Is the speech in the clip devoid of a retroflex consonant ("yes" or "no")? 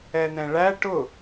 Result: no